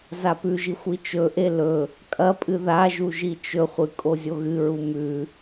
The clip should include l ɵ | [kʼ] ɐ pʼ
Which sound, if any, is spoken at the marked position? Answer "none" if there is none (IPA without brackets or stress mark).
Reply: kʼ